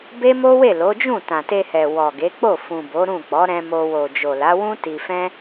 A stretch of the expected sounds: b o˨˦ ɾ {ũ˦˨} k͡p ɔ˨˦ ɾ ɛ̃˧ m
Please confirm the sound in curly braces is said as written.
yes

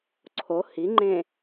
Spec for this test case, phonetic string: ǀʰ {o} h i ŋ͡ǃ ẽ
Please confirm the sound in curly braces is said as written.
yes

